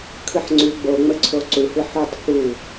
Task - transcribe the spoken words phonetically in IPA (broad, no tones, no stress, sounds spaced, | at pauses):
kʰ ɯ ħ ŋ͡ǀ ʉ ɡ͡b o ŋ͡m ə ǀʰ o ǀ u h ɯ ħ ʉ tˤ f u